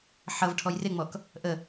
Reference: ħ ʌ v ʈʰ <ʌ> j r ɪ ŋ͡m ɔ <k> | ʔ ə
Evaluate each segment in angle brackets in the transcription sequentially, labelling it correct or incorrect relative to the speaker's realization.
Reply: incorrect: ɔ, correct

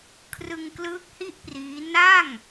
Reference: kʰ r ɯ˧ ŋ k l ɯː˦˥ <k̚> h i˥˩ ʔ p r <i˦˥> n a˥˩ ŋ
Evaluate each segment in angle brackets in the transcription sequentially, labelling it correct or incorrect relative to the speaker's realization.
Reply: correct, incorrect: iː˦˥

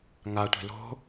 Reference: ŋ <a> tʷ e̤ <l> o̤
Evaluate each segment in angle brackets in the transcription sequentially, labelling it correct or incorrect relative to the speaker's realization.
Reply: correct, correct

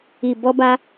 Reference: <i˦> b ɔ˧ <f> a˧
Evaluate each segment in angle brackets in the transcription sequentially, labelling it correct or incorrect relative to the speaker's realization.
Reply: incorrect: i˨, incorrect: b

